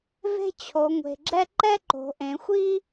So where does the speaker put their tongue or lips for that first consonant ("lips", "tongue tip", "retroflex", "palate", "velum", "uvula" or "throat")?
lips